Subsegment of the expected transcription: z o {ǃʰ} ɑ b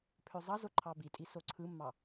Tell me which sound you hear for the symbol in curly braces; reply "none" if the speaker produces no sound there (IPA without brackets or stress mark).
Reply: ǃʰ